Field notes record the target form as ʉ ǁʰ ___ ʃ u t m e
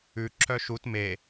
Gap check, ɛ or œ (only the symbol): œ